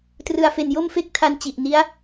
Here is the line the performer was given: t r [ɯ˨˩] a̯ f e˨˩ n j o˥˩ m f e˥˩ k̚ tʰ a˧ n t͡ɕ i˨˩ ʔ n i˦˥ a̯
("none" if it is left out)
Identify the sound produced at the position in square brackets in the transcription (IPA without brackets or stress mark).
ɯ˨˩